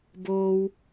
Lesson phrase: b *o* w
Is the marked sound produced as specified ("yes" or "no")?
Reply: no